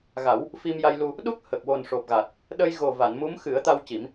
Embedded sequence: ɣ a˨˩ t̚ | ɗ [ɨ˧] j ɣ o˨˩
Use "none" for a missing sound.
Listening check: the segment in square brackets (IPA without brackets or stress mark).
ə˧